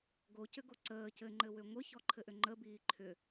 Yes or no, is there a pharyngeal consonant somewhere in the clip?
no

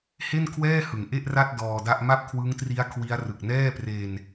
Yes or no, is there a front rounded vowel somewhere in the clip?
no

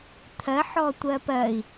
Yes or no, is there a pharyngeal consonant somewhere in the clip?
yes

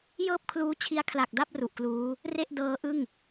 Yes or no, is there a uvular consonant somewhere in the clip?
no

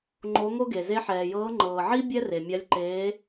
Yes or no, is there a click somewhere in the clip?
yes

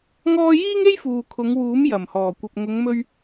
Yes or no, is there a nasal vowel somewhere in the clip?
no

